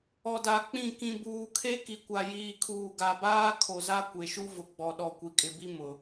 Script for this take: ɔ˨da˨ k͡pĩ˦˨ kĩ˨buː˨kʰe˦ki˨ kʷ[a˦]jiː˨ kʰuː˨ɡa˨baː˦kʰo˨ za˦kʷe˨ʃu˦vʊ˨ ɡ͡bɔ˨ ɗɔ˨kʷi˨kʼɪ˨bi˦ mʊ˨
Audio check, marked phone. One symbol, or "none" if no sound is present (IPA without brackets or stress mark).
a˨